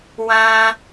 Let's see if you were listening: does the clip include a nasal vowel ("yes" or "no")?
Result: yes